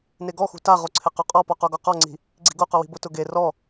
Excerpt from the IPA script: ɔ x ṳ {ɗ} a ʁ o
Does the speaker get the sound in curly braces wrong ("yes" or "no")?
yes